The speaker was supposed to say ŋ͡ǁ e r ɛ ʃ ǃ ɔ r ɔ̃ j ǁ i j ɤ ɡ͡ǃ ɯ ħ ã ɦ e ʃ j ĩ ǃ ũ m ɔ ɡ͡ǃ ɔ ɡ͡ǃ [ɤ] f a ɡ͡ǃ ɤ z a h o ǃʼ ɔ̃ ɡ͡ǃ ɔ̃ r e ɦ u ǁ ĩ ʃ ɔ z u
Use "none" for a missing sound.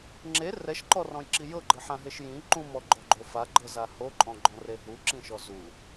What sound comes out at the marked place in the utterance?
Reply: o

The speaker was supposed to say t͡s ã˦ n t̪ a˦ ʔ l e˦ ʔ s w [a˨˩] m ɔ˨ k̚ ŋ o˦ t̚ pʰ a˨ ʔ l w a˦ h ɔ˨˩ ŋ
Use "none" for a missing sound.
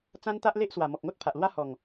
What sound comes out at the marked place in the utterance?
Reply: a˨˩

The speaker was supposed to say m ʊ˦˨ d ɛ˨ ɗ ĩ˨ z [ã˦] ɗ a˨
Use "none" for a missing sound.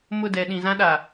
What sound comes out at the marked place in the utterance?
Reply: ã˦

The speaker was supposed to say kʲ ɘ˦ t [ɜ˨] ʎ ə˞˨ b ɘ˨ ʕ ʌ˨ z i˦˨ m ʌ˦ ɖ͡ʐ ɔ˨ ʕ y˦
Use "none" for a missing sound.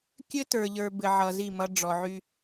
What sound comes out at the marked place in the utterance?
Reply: ə˞˨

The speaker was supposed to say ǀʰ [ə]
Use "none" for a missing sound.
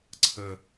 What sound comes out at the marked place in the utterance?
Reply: ə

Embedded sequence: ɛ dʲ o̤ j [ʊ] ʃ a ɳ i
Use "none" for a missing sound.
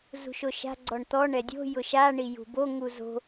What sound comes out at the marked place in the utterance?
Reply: ʊ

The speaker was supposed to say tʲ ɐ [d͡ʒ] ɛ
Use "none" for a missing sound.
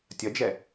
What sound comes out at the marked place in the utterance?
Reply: d͡ʒ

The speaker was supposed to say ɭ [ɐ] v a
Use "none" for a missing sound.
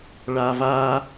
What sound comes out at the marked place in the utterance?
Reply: a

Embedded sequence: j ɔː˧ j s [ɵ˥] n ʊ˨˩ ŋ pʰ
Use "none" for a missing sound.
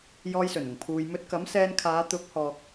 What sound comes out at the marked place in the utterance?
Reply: ɵ˨˩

